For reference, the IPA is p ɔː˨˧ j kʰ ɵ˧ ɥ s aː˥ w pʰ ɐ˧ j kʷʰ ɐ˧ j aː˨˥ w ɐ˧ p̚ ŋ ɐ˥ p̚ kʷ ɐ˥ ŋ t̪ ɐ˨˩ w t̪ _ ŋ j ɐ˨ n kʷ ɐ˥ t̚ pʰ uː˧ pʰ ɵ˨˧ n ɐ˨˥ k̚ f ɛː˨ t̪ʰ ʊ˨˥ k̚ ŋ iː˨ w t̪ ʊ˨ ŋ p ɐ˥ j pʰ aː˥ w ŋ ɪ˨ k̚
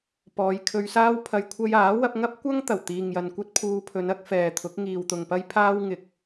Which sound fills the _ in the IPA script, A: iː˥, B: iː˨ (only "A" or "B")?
B